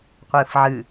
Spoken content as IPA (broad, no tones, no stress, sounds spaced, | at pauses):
qʷ ɨː f ʕ ɨ